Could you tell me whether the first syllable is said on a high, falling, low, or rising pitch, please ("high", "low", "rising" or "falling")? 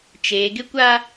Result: low